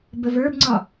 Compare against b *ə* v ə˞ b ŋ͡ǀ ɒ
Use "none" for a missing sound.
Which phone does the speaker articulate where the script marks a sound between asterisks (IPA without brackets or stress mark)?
ə